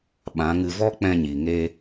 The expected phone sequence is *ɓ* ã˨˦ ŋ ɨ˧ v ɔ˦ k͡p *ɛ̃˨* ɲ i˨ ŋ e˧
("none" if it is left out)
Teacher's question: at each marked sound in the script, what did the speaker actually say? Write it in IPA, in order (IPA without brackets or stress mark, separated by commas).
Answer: ɓ, ɛ̃˧